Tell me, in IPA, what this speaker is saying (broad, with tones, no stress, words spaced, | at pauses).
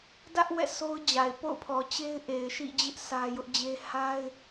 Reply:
dä˦ʔ wɛ̰˦˨sʰo˦ʊ̯d͡ʑa˨ɪ̯ po̰˦˨ʊ̯pʰɔ˨t͡ɕe˦ɪ̯ ʔe˨ɪ̯ʃḭ˦˨d͡ʑɪ˦ʔ sä˦ jʊ˦ʔd͡ʑe˦ ha˦ɪ̯